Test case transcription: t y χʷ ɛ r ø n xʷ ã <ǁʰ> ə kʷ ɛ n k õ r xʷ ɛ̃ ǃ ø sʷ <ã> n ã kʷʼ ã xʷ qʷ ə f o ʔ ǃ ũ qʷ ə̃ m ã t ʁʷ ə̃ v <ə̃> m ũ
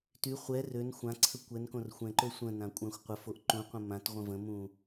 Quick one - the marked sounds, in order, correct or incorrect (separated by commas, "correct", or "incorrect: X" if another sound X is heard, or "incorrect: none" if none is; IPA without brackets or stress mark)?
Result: incorrect: ǀʰ, incorrect: ə̃, correct